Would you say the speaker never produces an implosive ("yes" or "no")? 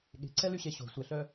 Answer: no